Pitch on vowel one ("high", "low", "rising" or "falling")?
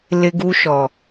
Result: high